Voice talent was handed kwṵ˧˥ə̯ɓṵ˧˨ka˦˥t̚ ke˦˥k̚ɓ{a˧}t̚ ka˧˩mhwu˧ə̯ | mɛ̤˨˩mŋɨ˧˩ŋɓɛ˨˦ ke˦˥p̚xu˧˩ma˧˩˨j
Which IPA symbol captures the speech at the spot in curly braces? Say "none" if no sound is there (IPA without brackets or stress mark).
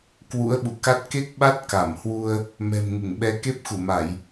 a˦˥